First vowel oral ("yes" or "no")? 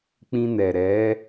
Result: no